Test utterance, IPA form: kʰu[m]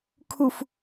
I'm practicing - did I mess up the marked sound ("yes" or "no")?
yes